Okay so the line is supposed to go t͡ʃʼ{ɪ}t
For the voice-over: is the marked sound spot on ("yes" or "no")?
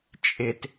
yes